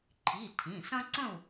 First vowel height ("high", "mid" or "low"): high